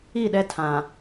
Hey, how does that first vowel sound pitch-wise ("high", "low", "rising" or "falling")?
falling